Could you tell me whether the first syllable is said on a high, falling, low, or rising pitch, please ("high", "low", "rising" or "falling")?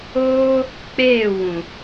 high